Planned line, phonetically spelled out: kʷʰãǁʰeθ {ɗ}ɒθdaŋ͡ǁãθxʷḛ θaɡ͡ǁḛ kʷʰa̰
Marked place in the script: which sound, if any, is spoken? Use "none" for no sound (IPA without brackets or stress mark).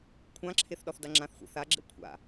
ɗ